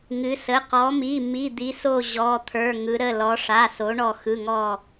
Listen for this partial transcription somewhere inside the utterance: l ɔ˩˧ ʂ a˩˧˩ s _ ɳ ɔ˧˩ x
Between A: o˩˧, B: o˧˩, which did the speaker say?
A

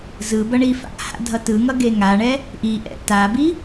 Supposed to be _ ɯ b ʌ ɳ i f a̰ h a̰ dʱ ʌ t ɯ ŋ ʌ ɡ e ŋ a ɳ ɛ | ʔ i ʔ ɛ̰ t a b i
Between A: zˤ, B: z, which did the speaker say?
B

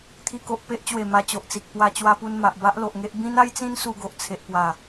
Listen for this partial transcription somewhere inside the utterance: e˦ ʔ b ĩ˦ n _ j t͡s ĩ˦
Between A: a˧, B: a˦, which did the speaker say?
B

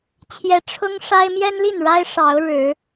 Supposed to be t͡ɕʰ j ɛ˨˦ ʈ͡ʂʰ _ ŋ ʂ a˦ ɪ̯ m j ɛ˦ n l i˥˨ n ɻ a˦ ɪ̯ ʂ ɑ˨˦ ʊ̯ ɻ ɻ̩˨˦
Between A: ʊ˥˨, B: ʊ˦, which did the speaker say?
B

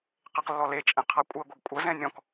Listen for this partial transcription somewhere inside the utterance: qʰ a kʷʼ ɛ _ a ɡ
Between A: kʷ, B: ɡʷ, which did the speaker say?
B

